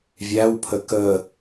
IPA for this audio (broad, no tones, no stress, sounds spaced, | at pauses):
vʲ æ w pʰ ə k ə